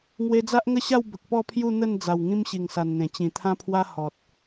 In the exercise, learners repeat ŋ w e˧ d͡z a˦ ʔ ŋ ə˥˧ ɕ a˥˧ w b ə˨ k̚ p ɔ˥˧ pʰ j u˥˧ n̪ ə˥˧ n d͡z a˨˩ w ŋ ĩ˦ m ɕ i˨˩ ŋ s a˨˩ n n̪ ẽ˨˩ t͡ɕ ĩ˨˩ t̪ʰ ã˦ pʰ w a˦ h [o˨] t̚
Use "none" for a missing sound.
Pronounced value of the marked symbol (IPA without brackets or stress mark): ɔ˨